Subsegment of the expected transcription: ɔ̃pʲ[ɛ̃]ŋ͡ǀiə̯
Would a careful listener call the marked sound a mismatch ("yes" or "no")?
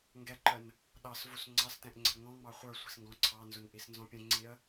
yes